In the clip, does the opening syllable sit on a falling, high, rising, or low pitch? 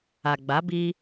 low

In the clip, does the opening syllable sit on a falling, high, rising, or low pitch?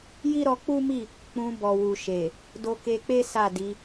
high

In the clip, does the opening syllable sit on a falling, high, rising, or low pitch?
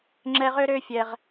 high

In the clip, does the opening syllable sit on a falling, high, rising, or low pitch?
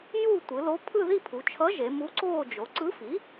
falling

